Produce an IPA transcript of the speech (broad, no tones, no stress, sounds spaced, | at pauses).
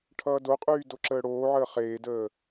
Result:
ʈʰ ʌː d o qʼ yː d o ǁ əː ɽ oː ʕ əː χ eː d əː